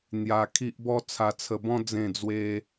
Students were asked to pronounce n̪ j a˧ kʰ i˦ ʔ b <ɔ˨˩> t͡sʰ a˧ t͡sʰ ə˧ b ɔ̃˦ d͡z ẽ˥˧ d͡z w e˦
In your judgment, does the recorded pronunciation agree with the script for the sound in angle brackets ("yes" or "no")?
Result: no